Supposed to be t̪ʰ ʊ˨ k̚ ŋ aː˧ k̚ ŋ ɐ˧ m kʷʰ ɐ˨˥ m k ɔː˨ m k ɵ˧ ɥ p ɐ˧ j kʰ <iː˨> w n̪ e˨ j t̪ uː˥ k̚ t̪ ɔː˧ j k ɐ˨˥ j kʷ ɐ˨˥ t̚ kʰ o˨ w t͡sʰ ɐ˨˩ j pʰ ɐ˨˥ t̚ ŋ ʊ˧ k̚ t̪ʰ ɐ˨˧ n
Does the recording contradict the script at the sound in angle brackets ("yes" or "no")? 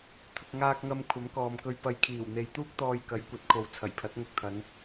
yes